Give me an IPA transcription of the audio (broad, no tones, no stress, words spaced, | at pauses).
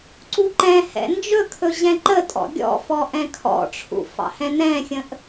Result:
ǀuǃɛ̃hɛ̰ nd͡ʒɵkʰɵ ʑɛ̃ǃətʼɔ̰ ɡʲɔ̰fɔ ʔɛ̃kʰɔ̰ʈ͡ʂʰṵ fɑ̰hɛ̃nɛ̃xʲə̃ʔ